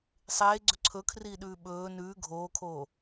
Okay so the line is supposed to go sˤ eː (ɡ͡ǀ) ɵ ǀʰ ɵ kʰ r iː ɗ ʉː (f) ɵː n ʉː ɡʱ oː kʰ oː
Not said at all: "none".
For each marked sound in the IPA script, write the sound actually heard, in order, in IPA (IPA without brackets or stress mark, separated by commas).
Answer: ɡ͡ǀ, ɓ